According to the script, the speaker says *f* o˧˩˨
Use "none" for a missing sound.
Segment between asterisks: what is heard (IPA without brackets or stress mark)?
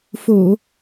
f